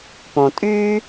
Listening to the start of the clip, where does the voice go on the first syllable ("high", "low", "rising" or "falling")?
low